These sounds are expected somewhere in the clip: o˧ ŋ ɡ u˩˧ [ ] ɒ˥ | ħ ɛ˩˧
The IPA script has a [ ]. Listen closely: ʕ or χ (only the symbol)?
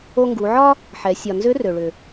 ʕ